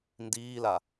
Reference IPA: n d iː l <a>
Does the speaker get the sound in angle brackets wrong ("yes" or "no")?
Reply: no